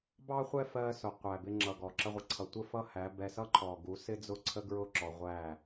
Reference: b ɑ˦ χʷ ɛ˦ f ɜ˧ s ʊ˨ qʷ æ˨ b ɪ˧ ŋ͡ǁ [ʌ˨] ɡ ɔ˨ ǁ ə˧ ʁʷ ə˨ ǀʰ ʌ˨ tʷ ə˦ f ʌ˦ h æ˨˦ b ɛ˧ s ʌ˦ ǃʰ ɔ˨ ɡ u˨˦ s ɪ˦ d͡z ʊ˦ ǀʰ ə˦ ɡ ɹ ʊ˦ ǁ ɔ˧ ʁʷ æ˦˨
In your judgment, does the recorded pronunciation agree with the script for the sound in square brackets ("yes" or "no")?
yes